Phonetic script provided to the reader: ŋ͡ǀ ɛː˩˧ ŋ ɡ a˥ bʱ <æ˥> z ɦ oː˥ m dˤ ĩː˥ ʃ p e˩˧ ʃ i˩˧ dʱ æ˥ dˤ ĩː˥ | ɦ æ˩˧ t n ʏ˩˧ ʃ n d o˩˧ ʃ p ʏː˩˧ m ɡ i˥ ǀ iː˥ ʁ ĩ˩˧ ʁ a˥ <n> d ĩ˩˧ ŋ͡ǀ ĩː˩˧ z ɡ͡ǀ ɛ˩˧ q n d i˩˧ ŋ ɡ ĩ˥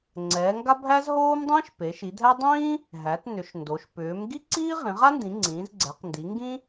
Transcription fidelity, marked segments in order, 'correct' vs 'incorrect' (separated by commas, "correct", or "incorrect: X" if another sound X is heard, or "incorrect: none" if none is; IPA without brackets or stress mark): correct, correct